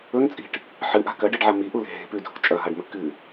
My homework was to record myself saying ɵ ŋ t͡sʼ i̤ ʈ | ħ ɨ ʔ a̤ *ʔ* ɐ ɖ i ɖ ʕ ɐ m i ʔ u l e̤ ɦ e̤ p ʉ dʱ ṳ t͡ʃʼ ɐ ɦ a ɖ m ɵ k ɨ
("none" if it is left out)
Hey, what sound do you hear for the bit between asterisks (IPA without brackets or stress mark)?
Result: k